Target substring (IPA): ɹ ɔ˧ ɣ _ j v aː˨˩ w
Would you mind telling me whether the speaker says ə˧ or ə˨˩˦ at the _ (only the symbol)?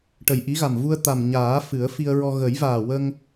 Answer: ə˨˩˦